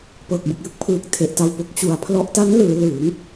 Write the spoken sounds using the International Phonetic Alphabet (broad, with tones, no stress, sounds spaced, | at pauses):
p ɤː˨˩ k̚ b ɯ˨˩ k̚ j ɯ˦˥ k̚ pʰ ɯː˨˩ k̚ tʰ e˨˩ ʔ t a˧ w p o˨˩ k̚ t͡ɕ u˨˩ a̯ pʰ l ɔ˦˥ ʔ t a˦˥ n l ɯː˩˦ l ɯː˩˦ ŋ